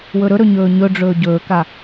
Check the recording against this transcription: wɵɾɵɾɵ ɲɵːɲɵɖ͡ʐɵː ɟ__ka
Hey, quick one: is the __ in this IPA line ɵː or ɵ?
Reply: ɵː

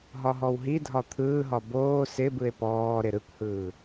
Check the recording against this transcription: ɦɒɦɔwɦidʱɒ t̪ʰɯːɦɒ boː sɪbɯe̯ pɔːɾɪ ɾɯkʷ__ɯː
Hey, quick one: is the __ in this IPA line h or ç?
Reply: h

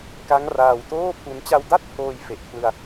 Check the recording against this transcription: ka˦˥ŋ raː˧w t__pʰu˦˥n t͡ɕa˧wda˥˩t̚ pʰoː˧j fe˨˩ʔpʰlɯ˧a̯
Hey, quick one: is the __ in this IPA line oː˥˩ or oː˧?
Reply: oː˥˩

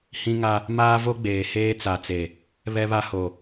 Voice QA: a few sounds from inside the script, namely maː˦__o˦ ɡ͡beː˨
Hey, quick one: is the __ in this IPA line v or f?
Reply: v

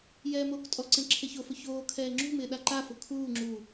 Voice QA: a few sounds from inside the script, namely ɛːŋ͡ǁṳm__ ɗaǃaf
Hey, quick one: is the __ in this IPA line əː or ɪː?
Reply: ɪː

